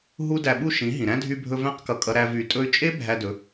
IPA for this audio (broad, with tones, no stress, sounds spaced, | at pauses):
ɦ u˦ d æ˧ ɓ u˦ ʃ ĩ˨˦ ɦ ĩ˨ ɾ æ̃˦ dʱ y˧ bʱ ɵ˧ v æ̃˧ q k ʌ˨ kʼ ʌ˧ ɾ æ˧ v y˨ tʼ ɵ˧ y̯ t͡ʃʼ e˦ bʱ æ˧ d ɵ˨˦